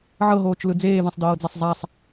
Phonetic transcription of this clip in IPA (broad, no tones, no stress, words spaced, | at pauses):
ʕɤɦoːt͡ʃlɯ d͡zeːvãsˤdɤːd͡zasˤ zˤasˤ